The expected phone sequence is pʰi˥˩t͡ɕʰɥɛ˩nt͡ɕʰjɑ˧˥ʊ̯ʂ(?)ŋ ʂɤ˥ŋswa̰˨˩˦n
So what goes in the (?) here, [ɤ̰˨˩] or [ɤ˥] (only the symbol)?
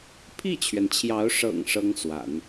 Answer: ɤ̰˨˩